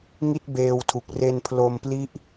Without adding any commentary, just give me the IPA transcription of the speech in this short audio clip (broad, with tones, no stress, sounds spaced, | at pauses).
ŋ i˥˩ t̚ b eː˧ w tʰ u˨˩ k̚ r e˧ n pʰ l o˧ m p l i˦˥ ʔ